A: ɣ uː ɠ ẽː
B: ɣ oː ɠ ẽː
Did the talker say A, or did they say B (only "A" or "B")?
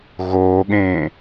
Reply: B